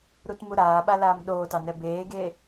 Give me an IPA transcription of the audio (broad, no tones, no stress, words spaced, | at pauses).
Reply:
ɾutmuɾaːɓa laːmɗoːtɑ nɛbeːɡeː